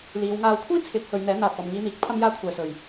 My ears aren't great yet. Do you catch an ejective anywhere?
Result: no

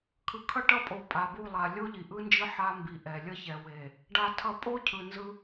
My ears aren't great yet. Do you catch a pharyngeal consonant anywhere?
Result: yes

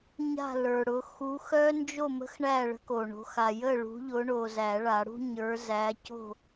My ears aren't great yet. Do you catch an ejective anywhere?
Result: no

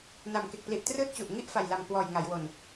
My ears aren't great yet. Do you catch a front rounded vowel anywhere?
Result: no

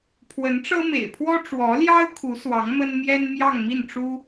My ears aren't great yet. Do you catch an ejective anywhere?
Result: no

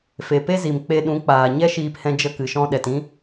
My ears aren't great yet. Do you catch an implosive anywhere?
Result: yes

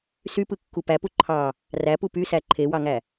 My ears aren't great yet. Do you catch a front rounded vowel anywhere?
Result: yes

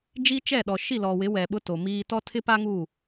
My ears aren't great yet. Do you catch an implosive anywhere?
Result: yes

